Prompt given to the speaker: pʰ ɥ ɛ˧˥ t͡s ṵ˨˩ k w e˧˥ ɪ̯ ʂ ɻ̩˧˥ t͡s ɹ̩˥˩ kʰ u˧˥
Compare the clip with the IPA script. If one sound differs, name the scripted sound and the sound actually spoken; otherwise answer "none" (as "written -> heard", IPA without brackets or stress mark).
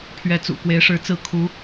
none